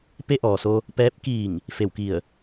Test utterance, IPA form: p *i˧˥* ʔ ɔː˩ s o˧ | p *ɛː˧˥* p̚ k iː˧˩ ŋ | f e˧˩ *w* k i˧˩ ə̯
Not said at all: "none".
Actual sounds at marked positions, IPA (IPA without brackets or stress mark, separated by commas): e˧˥, ɛː˧˥, w